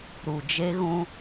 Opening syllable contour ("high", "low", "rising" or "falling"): low